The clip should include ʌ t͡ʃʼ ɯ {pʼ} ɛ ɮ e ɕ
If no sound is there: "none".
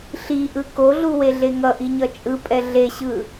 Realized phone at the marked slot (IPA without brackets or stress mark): pʼ